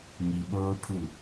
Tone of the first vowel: low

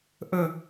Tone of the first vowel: high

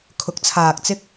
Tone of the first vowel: rising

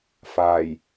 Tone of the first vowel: low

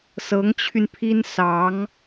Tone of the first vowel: rising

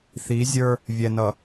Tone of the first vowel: rising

